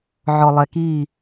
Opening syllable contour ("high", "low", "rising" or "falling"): low